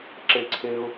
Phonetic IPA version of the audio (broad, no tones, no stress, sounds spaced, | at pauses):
ǁ e ǀʰ e ʊ̯